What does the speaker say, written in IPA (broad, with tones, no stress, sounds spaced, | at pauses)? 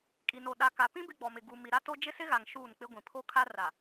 kʼ i˨ n o˨ ɗ a˨ k a˨ p ĩ˦ b ɪ˦ ɡ͡b ɔ˨ m ɪ˨ ɡ u˨ m i˨ ɾ a˦ t o˦ d͡ʒ ɪ˦ s ɪ˦ ɣ a˨ ŋ ʃ uː˦˨ n k͡p ɪ˦ ɡʷ ĩ˨ pʰ o˦ kʰ a˦ r a˨